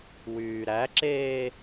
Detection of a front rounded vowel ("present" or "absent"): present